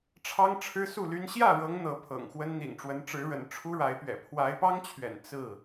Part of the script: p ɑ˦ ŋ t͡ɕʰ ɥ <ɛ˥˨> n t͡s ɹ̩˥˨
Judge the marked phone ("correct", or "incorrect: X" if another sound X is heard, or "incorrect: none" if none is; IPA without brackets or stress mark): incorrect: ɛ̰˨˩